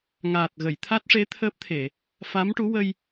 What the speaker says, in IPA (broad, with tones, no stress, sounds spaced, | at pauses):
ŋ aː˨˩ t̚ ɣ ə˨˩˨ j t̪ʰ a˦˥ t̚ ʂ e˧˥ t̪ʰ əː˦˥ p̚ t̪ʰ e˨˩˨ | f a˧˥ m ʈ u˧˥ w ə˧ j